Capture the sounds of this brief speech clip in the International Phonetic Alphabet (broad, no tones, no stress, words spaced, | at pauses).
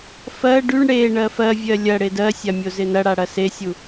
fɜ ɖyɳ ɽe ɳɜfɜvʲɜ lʲɐ ɽedɜsʲa mʲozɪnɐɽa ɽɐsesʲu